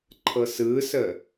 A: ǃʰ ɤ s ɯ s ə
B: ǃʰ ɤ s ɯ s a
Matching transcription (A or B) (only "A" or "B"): A